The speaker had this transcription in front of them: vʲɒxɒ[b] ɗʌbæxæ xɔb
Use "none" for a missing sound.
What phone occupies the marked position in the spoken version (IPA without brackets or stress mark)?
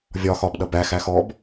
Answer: b